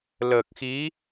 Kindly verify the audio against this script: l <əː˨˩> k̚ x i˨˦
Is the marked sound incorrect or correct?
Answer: correct